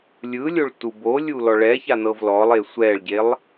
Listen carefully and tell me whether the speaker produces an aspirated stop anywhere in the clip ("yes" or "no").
no